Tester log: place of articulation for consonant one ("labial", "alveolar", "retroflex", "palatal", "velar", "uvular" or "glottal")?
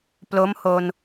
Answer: labial